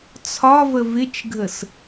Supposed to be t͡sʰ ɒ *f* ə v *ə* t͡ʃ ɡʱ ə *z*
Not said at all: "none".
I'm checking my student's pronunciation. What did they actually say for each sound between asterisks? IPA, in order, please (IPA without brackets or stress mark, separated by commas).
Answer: v, ɪ, s